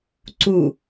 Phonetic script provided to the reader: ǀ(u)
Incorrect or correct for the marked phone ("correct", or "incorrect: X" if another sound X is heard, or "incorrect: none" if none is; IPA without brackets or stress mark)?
correct